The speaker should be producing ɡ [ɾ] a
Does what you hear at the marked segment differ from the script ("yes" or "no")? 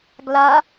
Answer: yes